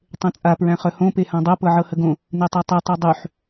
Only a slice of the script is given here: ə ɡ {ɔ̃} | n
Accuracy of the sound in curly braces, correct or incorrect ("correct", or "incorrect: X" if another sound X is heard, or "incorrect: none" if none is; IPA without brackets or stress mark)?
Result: incorrect: õ